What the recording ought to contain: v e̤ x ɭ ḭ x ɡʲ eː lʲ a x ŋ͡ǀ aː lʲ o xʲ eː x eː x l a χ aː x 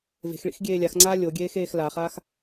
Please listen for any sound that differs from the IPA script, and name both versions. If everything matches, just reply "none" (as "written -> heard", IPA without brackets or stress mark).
xʲ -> ɡʲ